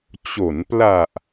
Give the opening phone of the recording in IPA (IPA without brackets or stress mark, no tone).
t͡ɕ